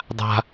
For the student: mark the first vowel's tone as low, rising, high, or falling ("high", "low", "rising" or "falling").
high